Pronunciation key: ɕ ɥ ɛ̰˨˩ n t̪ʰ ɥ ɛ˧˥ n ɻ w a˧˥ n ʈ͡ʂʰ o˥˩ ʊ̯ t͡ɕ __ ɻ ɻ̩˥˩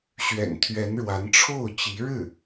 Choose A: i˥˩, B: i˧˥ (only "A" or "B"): B